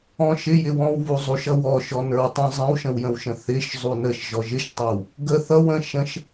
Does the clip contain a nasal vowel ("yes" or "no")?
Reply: yes